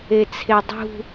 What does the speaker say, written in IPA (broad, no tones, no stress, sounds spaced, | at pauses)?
e t͡sʰ e dˤ ṳ